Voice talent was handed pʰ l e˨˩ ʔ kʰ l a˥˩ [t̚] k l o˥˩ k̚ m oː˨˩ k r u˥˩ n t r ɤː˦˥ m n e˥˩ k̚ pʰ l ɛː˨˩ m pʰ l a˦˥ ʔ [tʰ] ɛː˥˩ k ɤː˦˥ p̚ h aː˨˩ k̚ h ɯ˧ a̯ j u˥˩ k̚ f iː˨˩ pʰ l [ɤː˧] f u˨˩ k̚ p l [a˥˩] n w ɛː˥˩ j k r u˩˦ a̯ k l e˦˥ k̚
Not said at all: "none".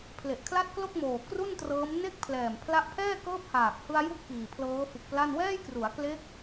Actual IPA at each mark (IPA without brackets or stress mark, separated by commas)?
t̚, pʰ, ɤː˦˥, a˥˩